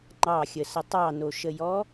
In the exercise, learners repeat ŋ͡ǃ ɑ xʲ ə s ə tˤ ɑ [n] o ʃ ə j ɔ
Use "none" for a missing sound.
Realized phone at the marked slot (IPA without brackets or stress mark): n